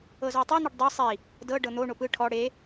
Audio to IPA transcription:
ɤ z ɔ tˤ i n̪ ɯ ɖ dˤ ɯ sˤ i | d ɤ ɖ ɤ n̪ o ɳ o p ɯ ʈʰ ɔ ɽ e

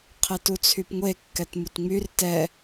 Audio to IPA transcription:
qʰ ɛ t u t͡sʰ y p ŋʷ e kː ɛ t m u t ŋ͡m y r t ɛ

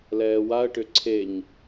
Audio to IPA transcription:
l ɛː w a ə̯ ʈ ʏ ǀʰ e ɲ

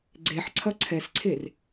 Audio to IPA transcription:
ɡ͡ǀ e ħ ǀʰ ɐ ǀʰ ɛ s ǀʰ e r

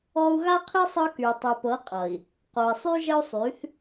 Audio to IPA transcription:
ɔ˦ u̯ ɣ a˦ qʰ i˦ sˤ ɤ˦ k y˨ tˤ y˨ p ɤ˨˦ qʼ ʌ˨ i̯ | q o˨ i̯ sˤ y˦ ʒ ə˦ u̯ sˤ y˨˦ θ

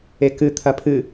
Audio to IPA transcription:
e k ɨ t̪ʰ ɐ pʰ ɨ

